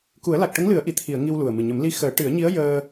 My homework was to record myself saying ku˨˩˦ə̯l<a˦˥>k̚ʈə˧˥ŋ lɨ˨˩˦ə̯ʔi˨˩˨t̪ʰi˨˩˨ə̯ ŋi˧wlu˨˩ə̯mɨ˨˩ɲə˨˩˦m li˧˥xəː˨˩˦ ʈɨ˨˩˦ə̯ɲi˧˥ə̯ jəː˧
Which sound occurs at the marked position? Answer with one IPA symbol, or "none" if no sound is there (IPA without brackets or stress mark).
a˨˩